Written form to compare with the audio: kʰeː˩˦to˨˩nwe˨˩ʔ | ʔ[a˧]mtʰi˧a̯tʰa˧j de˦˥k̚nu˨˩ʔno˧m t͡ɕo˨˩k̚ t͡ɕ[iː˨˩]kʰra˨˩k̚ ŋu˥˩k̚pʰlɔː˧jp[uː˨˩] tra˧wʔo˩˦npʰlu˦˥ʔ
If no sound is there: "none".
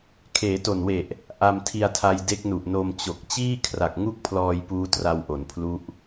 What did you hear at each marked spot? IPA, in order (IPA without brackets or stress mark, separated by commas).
a˧, iː˥˩, uː˦˥